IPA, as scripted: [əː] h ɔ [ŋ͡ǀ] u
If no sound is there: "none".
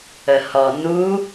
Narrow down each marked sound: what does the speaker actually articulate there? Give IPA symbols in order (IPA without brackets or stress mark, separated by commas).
ə, n